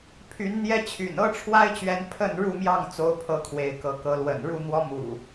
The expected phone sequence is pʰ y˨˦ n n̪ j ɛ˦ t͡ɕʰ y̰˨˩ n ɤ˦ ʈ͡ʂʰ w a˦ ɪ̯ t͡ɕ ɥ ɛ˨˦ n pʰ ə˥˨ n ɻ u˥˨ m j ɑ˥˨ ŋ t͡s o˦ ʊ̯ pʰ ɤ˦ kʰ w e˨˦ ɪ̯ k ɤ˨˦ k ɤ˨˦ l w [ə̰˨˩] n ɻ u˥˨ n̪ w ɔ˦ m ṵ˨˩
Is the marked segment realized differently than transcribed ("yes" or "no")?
no